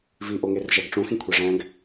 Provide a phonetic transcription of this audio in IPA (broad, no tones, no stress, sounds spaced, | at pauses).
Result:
v i ʔ o ŋ e r ʒ æ ɡ ʈ͡ʂ ũ x ĩ kʷʰ e ʐ æ̃ ɡ